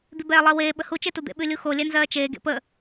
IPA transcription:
d̪ ʉ b ɛː lˠ ɜ w eː ɓ ə h u t͡ʃ e t u d̪ ḛ ɓ ʉ lʲ u x o lʲ ɛ n z ɜː t͡ʃ eː ɡ ḛ p ə

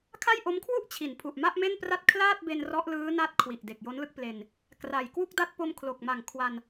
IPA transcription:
kʰ a˥˩ j ʔ o˦˥ m kʰ w u˥˩ ʔ t͡ɕʰ i˩˦ n pʰ u˨˩ ʔ m a˥˩ ʔ m e˥˩ n p r a˥˩ t̚ kʰ l aː˥˩ t̚ b e˧ n r ɔ˦˥ ʔ l ɯː˦˥ n a˦˥ t̚ kʰ w i˨˩ ʔ d e˨˩ k̚ j o˦˥ n l ɯ˥˩ k̚ p l e˧ n | k r a˨˩ j k w u˥˩ k̚ d a˥˩ t̚ p o˧ m kʰ l o˨˩ k̚ m a˨˩ ŋ kʰ w a˧ n

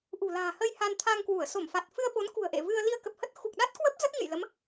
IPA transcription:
ʔ ṳ˨˩ l a̤ː˨˩ h ə˧ j h a˧ n t̪ʰ a˧ ŋ k w u˧˩ ə̯ s o˧˩ m f a˨˩ t̚ f ɨ˧ ə̯ ɓ o˨˦ n k ṳ˨˩ ə̯ ʔ ḛ˧˨ v ɨ˧ ə̯ l i˧ ə̯ k ə˨˩ p̚ h ə˦˥ t̚ x u˨˩ k̚ ɗ a˦˥ t̚ k w ə˦˥ p̚ z ə˦˥ t̚ ɲ ɨ̰˧˨ j l ə˨˦ m

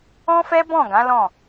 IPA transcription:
ɔ̃˦ f ɛ˦ b ɔ̃˦˨ ɡ ã˨˦ l ɔ̃˦˨

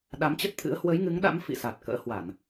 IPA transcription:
ɗ a˨˦ m t͡ɕ ə˦˥ t̚ t̪ʰ ɨ̰˧˥ ə̯ h w ə˨˦ j ŋ ɨ˨˦ ŋ ɗ a̰˧˥ m f ḭ˧˨ s a˨˩ t̚ k ə̰ː˧˥ h w a˧˩˨ n

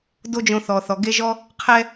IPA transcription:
d o˦ d͡ʒ õ˧ θ ɔ˨ θ ɔ˨ ɡ e˦ ʒ ɔ˦ | qʰ ɛ˦

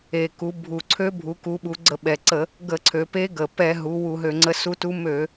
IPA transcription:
e˨˩ k u˩˧ bʱ u˨˩ ǀʰ ø˧˥ bʱ u˩˧ k u˩˧ ɓ u˩˧ ɡ͡ǀ ə˧˩˧ ɓ ɛ˨˩ ǀ ə˧˩˧ | ɡ ə˧˩˧ ǀʰ ø˩˧ p e˧˥ ɡ ə˨˩ p ɛ˧˩˧ ɦ u˩˧ w u˧˩˧ ɦ ø˧˩˧ ŋ͡ǀ ə˧˥ s u˧˥ t u˧˥ m ø˧˩˧

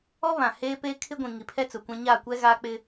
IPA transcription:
ɔ˦ β ã˨ h eː˦ p eː˦ kʰ ɪ˦ ɡʷ ĩ˨ ŋ i˨ pʰ ɛ˦ t͡s ʊ˨ kʷ ã˦ ɲ a˦˨ kʷ ɛ˦ ɣ aː˦ k͡p ɪ˦

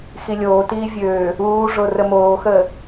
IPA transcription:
x i lʲ oː t iː vʲ øː | uː ʐ o r ə m oː x əː

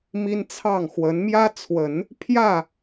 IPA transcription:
m i˥ n t͡sʰ ɑ˥˩ ŋ x w ə˧˥ n m j ä˥ t͡sʰ w ə˨˩˦ n | pʰ j ä˥˩

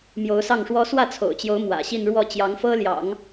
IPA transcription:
m j o˧˥ ʊ̯ s ɑ˥˩ ŋ ʂ w ɔ˥ s w ä˥˩ t͡sʰ o̰˨˩ ʊ̯ t͡ɕ j o˧˥ ʊ̯ m w ä̰˨˩ ɕ i˥˧ n ɻ w ɔ˥˩ t͡ɕ j ɑ˧˥ ŋ f ɤ˥ l j ɑ̰˨˩˦ ŋ

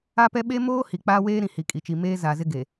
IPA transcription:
a˦ p ɛ˦ ɓ e˦ m oː˦ h i˨ k͡p aː˦ w eː˦ ɾ ĩ˨ h i˨ kʼ i˨ t͡ʃ i˨ m eː˦ z aː˨ z ɪ˦ ɡ e˨

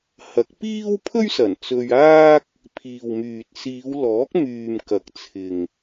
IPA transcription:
h ɐ˨˥ k̚ p iː˥ w pʰ ɵ˥ ɥ s ɐ˨˩ n t͡s ɵ˧ ɥ aː˥ k̚ | pʰ iː˨ w m yː˨ t̚ s iː˨˧ w l ɔː˨˥ k̚ m yː˨ m k ɐ˨ k̚ t͡sʰ ɪ˨ ŋ

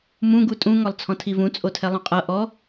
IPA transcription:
m ũ ɡ u tʼ ũ ŋ ɔ lˠ t͡sʰ ɔ̃ tʰ i v ũ t͡sʼ o tʰ ɛ lˠ ũ qʼ ɤ ʔ ɔ

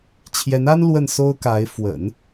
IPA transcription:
t͡ɕʰ j ɛ˧˥ n a˥ n l w ə˥˩ n s o˥ ʊ̯ k a˧˥ ɪ̯ f w ə̰˨˩˦ n

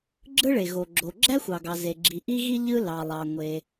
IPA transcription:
ɡ͡ǁ ɯ˥ ɭ e˩ ɣ o˩ ɡ͡ǁ o˩ ɡ͡ǁ æ˥ xʷ ɑ˩ ɡ ɑ˩ z e˩ ɡ͡ǁ i˩ ʔ i˥ ɣ i˥ ʎ ɯ˥ l ɑ˩ lˠ ɑ˩ ŋʷ e˩

